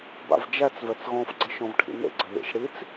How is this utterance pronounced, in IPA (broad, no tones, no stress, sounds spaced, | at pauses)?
b a̰ v d͡ʒ æ t͡s v ɛ t͡s ɣ ɔ̃ f ɡ͡ǀ ə ʃ ɔ̃ v ʈʰ ḭ n ḛ ɡ͡ǀ ə ð ḭ ʃ ɽ i t͡s